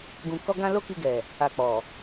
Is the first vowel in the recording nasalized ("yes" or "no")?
yes